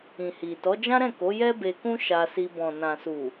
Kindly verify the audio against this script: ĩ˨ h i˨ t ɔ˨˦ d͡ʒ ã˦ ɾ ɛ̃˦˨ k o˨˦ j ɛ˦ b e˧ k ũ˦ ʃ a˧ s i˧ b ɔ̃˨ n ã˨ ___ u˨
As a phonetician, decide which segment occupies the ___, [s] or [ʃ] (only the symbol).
s